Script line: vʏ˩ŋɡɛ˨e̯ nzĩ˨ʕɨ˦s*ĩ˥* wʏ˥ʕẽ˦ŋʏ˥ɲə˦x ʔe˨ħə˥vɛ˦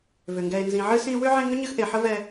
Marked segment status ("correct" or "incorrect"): incorrect